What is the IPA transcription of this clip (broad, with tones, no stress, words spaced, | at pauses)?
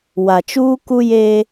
wa˨t͡ʃuː˦ku˦je˦